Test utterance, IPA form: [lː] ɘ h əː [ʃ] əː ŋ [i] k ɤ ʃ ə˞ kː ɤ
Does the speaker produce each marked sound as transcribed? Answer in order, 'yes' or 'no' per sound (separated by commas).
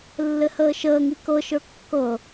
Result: yes, yes, yes